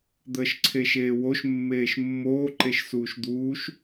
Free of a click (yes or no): no